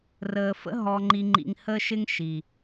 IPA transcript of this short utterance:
rəː˨fə̰˦ ɦɔ˨ŋ͡ǃi˨ŋ͡ǃḭ˨ŋ həː˦ʃɪ˦ŋʃi˨

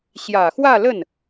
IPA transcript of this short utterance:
ɕjä˨˩xwä˥˧lə˥˩n

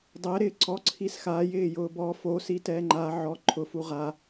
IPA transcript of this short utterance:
dˤɛɾɪː ǀɔǀʰis xajɪːjʊː bɔ fosi tɛːŋ͡ǃa ʕɔ ǃʰʊfu ʁa

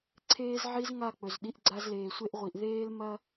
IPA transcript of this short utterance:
ǀʰeː˦z ʕi˧z ŋa˦˨k͡pɵ˨zɗi˧ʔ ɡ͡ǀa˧zleː˨sʷe˧ʔʁʷi˨ʔ ðeː˦l mɐ˦

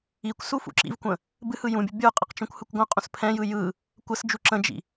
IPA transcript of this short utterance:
ikʷsu fṵǁḭvkʷə̃ | bɨhɯ jũbʲə bʲə˞qʼɯq t͡ʃũkʷhɯkʷɡʷə̃qʼũs pʰɛ̃jɯ jɯ | kʷəsd͡ʒu ǁə̃d͡ʒḭ

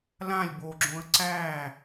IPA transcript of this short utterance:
lãlʲ boɡ͡ǁõə̯ ǀæː

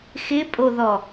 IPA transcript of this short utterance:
xɪpʼoðɔ

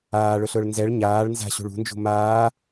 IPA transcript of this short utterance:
aːɭʊɬʊːɭ nzɛɭ ɲaːɭ nza̤ɕṳɭ ṳnd͡ʒṳ maː

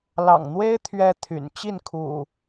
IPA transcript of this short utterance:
lɑ̰˨˩ŋn̪we˦ɪ̯ t̪ʰɥɛ˦t̪ʰy̰˨˩n t͡ɕi˥˨nkʰṵ˨˩

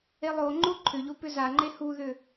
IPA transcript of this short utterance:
elˠoŋ͡ǃo ǃʰʏʎo pʏzaŋ͡ǃe huðʏ

